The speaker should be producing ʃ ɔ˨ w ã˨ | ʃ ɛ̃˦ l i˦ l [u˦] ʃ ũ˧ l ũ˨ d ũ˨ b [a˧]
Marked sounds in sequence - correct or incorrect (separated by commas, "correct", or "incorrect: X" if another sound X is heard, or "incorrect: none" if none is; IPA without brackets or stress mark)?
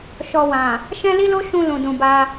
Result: incorrect: o˦, correct